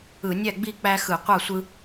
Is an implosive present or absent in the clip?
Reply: absent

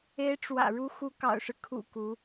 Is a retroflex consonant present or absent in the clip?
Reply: present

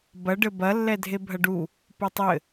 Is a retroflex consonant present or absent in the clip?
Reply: present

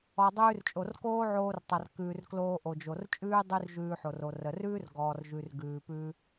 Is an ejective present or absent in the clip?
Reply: present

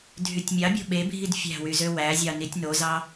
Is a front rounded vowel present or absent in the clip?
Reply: present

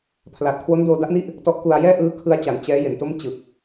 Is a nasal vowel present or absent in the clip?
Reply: absent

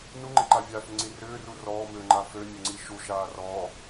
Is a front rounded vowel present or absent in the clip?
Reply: present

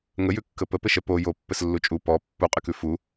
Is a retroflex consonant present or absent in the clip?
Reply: absent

